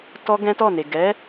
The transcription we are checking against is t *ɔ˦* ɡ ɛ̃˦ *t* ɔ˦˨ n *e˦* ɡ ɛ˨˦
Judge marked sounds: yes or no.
yes, yes, no

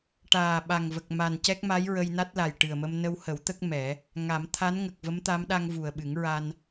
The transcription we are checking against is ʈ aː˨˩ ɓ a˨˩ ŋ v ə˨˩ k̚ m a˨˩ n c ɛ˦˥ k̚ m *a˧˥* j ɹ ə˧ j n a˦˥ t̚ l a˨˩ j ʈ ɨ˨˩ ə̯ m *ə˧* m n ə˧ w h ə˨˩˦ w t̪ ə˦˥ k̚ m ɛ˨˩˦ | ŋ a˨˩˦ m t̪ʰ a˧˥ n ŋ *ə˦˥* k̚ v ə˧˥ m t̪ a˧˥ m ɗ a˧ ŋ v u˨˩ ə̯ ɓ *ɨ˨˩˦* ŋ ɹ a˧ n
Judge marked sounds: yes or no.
yes, yes, no, yes

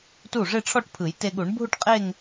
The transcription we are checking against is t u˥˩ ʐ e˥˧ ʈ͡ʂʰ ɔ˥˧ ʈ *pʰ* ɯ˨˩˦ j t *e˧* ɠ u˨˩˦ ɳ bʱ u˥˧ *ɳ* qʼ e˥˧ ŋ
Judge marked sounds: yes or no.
yes, yes, no

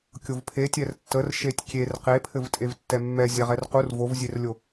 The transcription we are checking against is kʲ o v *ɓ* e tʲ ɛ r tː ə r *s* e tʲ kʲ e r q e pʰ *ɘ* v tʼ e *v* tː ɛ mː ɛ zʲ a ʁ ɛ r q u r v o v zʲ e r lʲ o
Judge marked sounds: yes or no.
no, no, yes, yes

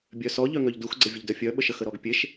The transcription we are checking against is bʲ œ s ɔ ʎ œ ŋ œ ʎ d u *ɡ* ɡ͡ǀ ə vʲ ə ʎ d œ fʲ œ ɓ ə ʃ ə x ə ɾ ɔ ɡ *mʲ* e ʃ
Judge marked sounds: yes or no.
no, no

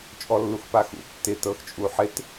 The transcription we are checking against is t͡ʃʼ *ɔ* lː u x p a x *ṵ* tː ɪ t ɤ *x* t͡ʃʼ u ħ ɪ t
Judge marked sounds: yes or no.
yes, yes, yes

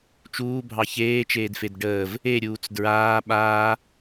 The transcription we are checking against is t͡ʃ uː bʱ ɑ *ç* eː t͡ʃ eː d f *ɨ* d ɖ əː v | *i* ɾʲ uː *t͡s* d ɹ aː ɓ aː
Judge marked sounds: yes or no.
yes, no, no, yes

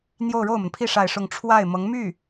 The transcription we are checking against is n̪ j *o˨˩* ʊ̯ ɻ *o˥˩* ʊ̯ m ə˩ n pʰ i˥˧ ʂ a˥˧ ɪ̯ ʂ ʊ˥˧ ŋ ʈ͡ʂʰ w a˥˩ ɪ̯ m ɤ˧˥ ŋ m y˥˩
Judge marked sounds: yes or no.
no, yes

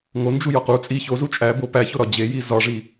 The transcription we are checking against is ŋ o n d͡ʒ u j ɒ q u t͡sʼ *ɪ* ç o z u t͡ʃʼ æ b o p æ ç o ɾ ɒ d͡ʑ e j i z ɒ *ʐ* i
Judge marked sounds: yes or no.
no, yes

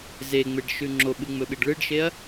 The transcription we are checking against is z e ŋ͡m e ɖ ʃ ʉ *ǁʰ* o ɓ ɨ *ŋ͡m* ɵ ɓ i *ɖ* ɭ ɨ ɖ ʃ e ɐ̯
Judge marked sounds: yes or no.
no, yes, yes

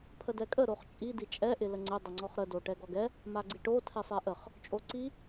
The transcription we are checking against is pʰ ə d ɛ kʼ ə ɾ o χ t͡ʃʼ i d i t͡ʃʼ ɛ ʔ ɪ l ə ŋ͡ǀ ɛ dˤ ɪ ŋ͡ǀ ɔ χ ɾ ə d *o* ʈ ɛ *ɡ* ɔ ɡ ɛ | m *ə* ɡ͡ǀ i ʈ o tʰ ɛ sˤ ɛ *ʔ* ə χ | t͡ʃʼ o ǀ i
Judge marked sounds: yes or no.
yes, yes, no, yes

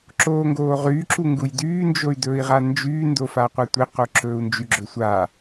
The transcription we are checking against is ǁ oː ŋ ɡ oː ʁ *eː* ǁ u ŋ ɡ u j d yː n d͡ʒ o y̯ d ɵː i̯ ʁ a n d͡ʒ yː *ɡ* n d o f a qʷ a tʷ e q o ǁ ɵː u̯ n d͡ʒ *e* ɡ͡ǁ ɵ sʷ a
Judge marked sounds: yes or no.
no, no, no

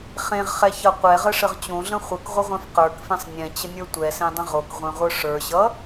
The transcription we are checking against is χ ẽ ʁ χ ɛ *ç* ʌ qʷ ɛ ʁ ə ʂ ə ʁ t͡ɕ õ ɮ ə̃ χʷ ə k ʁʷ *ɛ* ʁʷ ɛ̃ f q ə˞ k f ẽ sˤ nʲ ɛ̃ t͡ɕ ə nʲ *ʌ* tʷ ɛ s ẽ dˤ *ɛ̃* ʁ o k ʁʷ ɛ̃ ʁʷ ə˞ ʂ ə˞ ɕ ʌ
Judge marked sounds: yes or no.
yes, no, no, no

